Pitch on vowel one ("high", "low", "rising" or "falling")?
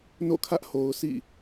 falling